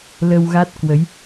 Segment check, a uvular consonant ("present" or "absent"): absent